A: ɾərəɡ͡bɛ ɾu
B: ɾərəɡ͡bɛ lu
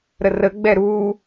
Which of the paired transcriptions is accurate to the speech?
A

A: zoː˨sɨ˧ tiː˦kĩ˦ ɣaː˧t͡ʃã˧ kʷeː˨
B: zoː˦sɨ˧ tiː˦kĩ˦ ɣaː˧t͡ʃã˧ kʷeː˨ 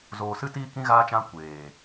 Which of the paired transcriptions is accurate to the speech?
A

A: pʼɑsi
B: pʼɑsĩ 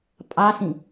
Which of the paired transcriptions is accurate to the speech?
B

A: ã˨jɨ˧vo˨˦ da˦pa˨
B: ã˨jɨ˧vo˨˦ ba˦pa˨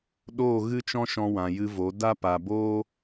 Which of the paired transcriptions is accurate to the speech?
A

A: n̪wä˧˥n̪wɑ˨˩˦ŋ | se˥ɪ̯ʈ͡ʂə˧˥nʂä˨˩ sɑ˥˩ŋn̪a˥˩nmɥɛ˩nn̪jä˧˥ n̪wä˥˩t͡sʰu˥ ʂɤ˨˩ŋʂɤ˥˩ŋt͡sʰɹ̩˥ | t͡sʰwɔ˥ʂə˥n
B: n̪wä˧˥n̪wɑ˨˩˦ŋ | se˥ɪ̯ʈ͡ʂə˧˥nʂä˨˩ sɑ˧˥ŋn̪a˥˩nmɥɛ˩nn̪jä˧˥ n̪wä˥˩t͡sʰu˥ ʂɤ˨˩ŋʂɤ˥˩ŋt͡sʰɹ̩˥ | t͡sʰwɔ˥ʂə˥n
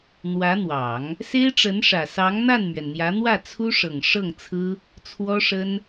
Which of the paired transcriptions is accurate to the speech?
B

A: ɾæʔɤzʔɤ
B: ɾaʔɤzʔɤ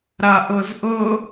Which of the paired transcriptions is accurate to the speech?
B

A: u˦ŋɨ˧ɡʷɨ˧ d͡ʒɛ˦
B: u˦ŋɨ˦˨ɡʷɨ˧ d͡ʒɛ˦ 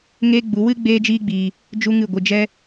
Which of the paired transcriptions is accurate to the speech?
B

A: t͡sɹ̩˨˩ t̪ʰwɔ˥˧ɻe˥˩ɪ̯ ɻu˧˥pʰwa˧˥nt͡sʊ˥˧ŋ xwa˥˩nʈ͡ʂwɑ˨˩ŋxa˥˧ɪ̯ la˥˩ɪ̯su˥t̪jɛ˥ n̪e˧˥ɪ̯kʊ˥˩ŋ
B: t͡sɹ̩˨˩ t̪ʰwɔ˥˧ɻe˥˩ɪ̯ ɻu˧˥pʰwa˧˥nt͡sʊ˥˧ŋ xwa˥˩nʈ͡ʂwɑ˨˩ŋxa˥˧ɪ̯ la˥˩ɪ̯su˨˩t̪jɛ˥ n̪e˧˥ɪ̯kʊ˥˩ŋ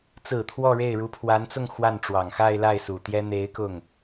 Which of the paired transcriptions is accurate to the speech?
B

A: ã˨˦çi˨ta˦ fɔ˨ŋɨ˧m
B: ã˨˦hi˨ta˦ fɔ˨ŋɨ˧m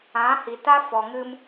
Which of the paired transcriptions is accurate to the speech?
B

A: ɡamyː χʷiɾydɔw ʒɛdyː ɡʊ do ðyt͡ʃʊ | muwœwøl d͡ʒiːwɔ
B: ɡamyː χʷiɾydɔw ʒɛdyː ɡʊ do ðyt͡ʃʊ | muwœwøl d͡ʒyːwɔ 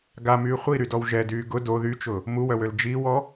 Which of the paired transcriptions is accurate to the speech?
A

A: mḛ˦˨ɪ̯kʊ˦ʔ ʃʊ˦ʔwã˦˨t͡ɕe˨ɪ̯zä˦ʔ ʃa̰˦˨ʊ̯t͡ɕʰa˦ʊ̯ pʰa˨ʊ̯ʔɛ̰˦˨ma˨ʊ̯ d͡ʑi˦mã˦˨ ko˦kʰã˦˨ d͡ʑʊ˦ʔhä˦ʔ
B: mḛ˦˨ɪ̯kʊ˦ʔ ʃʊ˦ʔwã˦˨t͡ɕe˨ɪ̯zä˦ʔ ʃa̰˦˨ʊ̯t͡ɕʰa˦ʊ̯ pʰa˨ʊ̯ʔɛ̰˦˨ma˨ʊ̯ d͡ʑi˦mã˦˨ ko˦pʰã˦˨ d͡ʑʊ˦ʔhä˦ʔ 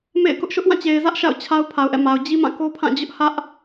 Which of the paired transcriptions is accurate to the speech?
B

